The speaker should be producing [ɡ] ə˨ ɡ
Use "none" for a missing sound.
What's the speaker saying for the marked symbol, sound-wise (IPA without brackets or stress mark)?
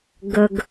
ɡ